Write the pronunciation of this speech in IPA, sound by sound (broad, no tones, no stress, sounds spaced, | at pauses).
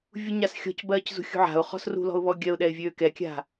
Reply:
vʲ u ɲ a s xʲ ɔ̤ c b ɜː c z ṳ xʲ ṳ ʕ a̤ ʊ̯ χ ɔ̤ s r ṳ l ɔ̤ ʊ̯ β ɔ ɡʲ ɜ ʊ̯ ɗ ɛ ɪ̯ vʲ øː k ɛ kʲ a̤